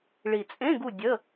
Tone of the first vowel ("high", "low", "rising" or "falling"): low